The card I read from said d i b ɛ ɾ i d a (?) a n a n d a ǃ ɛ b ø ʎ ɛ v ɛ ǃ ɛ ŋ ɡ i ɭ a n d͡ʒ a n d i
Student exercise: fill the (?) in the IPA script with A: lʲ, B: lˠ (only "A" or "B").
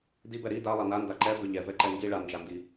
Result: B